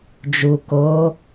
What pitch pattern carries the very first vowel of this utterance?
low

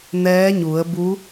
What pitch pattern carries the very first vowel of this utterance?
rising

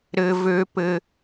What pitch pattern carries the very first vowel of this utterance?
high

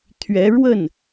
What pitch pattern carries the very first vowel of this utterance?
rising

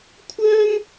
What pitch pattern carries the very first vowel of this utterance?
high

